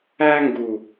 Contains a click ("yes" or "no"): no